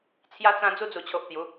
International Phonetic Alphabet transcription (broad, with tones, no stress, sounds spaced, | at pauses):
t͡sʰ j a˧ t͡s ã˧ d͡z u˧ d͡z u˨˩ t͡ɕʰ o˨ ʔ t̪ j u˨˦